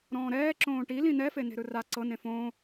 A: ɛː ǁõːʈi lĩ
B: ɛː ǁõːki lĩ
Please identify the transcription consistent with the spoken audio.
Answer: A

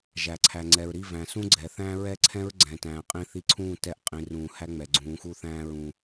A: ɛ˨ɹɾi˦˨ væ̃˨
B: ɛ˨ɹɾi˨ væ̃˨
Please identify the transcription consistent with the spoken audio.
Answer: A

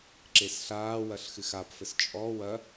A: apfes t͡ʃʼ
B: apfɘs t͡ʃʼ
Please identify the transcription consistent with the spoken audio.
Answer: B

